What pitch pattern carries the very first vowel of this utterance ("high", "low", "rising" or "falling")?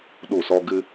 falling